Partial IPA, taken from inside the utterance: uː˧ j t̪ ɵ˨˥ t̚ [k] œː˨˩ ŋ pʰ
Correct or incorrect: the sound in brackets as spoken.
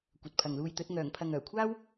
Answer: incorrect: ŋ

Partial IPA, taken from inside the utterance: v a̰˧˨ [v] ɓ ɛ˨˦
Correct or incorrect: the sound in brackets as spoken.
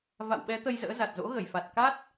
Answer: incorrect: w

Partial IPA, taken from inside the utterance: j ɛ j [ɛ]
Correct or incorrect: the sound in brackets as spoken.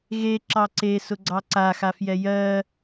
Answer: incorrect: ɜ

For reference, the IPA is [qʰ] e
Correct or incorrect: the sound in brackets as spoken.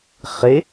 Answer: incorrect: χ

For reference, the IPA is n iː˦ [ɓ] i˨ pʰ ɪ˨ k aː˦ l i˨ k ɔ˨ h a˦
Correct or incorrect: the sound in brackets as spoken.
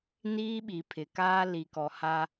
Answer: correct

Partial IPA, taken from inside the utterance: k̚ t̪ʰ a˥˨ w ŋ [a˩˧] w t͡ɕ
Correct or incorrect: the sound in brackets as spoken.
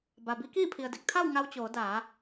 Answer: incorrect: a˧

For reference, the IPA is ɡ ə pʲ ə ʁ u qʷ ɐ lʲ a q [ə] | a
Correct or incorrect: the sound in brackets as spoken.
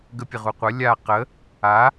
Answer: correct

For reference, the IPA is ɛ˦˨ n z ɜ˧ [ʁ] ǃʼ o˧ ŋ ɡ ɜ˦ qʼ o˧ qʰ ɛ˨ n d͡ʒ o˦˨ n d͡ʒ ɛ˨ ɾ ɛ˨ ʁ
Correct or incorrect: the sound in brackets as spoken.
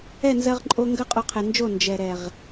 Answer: correct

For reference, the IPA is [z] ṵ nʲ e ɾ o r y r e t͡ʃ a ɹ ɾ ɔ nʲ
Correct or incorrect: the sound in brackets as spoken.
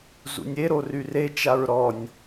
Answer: correct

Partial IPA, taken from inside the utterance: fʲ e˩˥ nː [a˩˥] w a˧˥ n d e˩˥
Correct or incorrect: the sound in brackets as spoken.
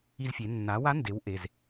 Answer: correct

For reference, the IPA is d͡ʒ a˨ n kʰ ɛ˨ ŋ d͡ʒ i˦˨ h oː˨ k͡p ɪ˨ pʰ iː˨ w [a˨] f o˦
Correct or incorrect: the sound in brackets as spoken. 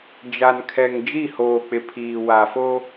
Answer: correct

